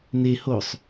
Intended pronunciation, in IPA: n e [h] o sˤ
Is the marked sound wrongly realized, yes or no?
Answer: no